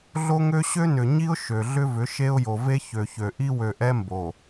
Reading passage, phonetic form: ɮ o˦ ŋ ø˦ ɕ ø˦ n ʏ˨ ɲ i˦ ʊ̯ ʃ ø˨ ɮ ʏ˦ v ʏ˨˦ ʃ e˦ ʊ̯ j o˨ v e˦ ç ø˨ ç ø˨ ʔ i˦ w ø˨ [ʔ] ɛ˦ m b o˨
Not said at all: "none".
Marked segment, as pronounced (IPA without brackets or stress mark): ʔ